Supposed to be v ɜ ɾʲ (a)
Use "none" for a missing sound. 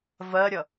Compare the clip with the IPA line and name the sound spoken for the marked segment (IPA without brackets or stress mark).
ʌ